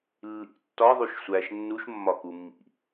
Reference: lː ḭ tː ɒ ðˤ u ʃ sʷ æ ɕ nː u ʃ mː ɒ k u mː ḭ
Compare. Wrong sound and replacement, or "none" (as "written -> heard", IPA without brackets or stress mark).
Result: ɕ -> ʃ